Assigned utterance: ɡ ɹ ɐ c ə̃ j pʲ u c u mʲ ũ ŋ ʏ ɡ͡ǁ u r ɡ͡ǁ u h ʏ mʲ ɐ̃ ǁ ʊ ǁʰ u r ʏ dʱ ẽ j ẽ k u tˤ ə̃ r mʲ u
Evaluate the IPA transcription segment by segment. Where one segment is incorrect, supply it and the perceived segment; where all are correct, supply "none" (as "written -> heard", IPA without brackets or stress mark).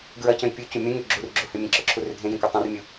none